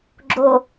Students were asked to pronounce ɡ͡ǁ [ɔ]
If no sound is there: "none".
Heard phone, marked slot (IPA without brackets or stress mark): o